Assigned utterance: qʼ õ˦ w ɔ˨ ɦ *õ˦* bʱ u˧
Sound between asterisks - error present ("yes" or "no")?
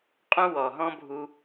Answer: yes